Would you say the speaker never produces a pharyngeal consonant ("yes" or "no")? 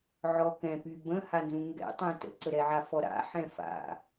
no